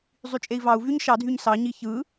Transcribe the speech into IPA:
zˤ y t͡ʃʼ e i̯ v ɑ u̯ v y ɲ ʃ ɑ dʱ y ɲ s ɑ ɲ i ç ɯ

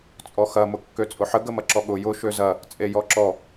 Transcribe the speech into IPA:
t͡sʼ ɔ x ɐ m ʊ kː ø t͡sʼ ʊ ħ ə ɡ ə m ɐ ǁ ɔ ɠ ʊ j ʊ ʃ ø z ɐ | t͡sʼ e j ɔ ǁ ɔ

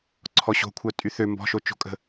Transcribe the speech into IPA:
ǀʰ ɔ ɕ o̤ kʷʰ œ tʼ y θ ø m b ɔ̤ ʃ o t͡ʃ o̤ kʼ ə̤

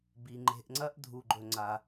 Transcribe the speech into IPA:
b i˩ ŋ͡ǃ e̤˨ ʔ ŋ͡ǀ ɐ˦ ʔ dʱ u˩ ɡ͡ǃ ɵ˩ ŋ͡ǀ a˩

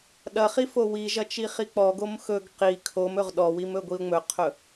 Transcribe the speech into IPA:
ɗ ɐ χ i f o w i ʒ ɐ t͡ʃ i χ i k͡p ɔ ɡ o m x ɵ ɡ q i kʰ o m ɵ ʁ ɗ ɔ w i m ɵ ɡʷ i ʊ̯ ŋ͡m ɵ qʰ ɵ

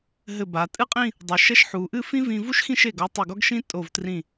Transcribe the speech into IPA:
ɦ ɘ˧˩ b a˩˧ tʼ ɨ˥ qʼ ĩ˥˧ | dˤ u˩˧ ʃ ɛ˥ ʃ ħ u˩˧ ʔ ɨ˥˧ f ĩ˥ v ĩ˧ v u˥ ʃ x ĩ˥˧ ʃ e˧˩ ɡ ɔ˧ tˤ ɘ˧˩ ɡ ɔ˥ ɡ ʃ ĩ˥ tʼ o˧˩ v t r ĩ˧˩

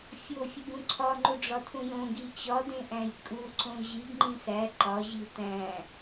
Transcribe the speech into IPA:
fʲ o fʲ u ɡ ũ ǀʰ ɒ ŋ͡ǃ u ɖ͡ʐ ɒ tʰ ũ j õ ɡ i t͡ɕ ɒ d ẽ ʔ æ̃ j kʼ u ǀ õ ʑ i ɡ ŋ͡ǃ ĩ s æ ǃ ɒ ʑ i t æ̃

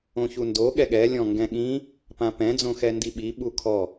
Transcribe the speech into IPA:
õ ç u n d o ɠ ɛ ɠ ɛ lʲ ɔ̃ ŋ ɡ ɛ̃ ɠ ĩ | p ã p ɛ̃ d͡z õ x ɛ n d i ɓ i ɓ u kʰ ɔ

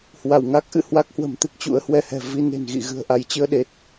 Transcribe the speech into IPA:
h w a˧˩ w ŋ a˦˥ k̚ ʔ ɨ̰˧˨ h w a˦˥ k̚ h w ə̤˨˩ m t̪ ɨ˦˥ k̚ t͡ɕ ṵ˧˥ ə̯ h w ɛ˧ h ɛ̤˨˩ v i˧ n e̤˨˩ n ɣ ḭ˧˨ ɣ ɨ̤˨˩ ə̯ ʔ a˧˩ j t͡ɕ ɨ˧ ə̯ ɗ e˨˩ t̚

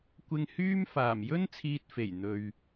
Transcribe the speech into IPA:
kʷ ɪ˧ ŋ h yː˥ m f aː˨˩ m j ɵ˥ n t͡sʰ iː˧ t̚ f e˨˩ j n̪ ɵ˧ ɥ

